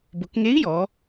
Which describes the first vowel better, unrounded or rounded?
rounded